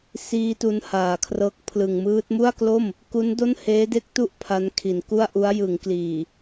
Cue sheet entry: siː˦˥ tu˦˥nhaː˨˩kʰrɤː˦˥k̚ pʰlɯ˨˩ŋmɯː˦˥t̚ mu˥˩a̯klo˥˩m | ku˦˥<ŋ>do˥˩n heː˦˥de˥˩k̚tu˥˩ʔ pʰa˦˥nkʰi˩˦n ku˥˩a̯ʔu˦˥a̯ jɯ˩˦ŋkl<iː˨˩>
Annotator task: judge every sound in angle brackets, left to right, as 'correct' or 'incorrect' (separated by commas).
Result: incorrect, correct